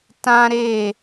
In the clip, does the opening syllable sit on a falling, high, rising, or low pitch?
high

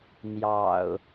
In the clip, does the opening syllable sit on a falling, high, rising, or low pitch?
low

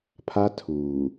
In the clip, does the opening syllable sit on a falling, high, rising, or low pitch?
high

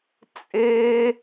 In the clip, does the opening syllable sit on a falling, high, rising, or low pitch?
high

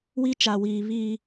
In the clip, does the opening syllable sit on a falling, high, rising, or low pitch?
high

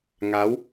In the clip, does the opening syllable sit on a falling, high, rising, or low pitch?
rising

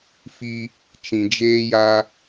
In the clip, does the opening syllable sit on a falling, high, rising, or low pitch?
high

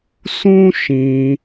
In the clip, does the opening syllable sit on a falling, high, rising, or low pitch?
high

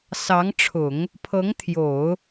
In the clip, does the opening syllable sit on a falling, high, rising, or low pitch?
rising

